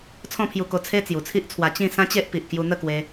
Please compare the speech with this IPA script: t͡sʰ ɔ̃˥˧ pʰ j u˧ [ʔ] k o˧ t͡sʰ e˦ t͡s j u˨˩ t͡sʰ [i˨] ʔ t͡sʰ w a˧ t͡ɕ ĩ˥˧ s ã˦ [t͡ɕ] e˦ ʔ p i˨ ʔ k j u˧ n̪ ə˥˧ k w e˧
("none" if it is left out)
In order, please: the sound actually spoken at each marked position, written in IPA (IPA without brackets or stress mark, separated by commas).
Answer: none, i˦, t͡ɕ